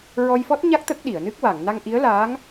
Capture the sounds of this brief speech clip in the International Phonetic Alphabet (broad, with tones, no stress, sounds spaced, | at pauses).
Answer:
ɹ ɔ˧ j f ɔ˦˥ t̚ ɲ a˦˥ k̚ t̪ ə˦˥ k̚ ɗ i˨˩˨ ə̯ n ɨ˦˥ k̚ w a˨˩˨ ŋ n a˧ ŋ ʔ i˧˥ ə̯ l aː˧˥ ŋ